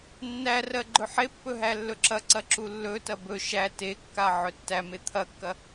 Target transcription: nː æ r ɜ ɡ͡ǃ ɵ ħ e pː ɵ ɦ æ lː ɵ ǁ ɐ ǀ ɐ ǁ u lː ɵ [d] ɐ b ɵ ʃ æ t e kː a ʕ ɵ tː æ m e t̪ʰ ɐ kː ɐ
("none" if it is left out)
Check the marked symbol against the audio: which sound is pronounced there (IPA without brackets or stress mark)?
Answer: t